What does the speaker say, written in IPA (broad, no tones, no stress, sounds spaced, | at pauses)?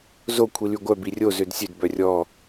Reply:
z o kʷʰ i l y ɡʷ œ b i rʲ o z ø d sʲ ø d b œ rʲ ɔ